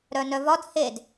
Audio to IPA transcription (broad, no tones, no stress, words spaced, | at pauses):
ɾœnœvɒd hed